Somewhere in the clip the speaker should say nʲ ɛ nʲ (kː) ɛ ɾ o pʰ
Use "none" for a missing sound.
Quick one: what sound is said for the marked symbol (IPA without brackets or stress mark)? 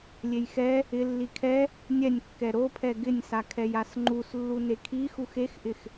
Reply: kː